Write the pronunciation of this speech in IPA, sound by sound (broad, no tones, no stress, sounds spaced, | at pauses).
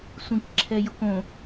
sʷ ĩ k ǁʰ ɛ j ʊ k õ